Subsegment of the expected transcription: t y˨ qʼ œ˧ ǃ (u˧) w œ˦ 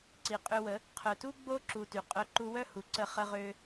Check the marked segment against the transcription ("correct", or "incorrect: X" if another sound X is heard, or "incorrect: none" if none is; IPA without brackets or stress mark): correct